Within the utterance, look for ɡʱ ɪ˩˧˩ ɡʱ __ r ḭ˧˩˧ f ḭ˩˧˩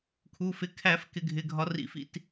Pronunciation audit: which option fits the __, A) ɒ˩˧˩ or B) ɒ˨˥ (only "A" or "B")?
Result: B